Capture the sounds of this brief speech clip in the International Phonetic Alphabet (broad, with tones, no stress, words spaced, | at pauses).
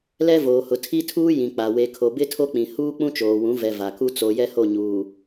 lɛ˦voː˨hʊ˨ tʰi˦tʰuː˦ jĩ˨k͡pa˨ we˨kʰo˨bɪ˦ tʰo˦k͡pĩ˨ huː˦ k͡pũ˦t͡ʃoː˨wũ˨˦ vɛ˨ va˨ku˦ t͡so˨ jɛ˦ho˦˨ɲuː˨